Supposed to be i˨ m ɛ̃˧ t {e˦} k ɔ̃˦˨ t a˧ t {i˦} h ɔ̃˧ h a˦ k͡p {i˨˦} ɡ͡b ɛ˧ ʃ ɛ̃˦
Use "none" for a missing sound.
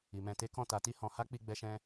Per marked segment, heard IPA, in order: e˦, i˦, i˧

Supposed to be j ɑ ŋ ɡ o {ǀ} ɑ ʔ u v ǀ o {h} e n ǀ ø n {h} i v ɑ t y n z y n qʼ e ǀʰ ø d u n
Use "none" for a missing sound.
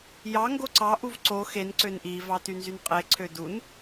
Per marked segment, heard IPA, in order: ǀ, x, ʔ

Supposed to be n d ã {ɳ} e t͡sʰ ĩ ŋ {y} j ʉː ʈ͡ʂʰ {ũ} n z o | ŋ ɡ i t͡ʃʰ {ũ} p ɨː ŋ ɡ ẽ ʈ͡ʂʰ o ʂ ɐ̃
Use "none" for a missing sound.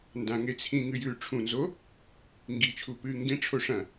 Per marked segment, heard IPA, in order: ŋ, ɨ, ũ, u

